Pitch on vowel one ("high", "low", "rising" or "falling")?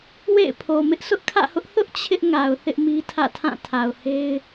falling